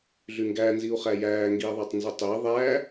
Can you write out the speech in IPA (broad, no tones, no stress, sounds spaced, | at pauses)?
ɮ y ŋ ɡ æ n z i u̯ χ æ j æː ŋ ɡ iː ðˤ æ tˤ n z ɯ tˤ iː ðˤ æː